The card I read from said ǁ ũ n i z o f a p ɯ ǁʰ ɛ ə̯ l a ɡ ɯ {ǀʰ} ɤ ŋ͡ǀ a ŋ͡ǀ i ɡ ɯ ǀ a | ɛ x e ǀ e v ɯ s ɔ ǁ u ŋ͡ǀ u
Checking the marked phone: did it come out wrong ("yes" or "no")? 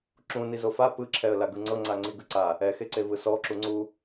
yes